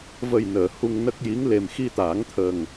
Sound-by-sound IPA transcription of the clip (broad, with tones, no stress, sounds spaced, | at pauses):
v ə˨˩ j n əː˨˩˨ h u˧ ŋ n ə˦˥ k̚ j i˧˥ ŋ l e˨˩ m x i˧ t̪ aː˨˩˦ ŋ t̪ʰ ə˨˩ ŋ